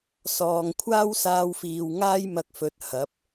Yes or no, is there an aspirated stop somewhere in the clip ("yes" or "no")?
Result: yes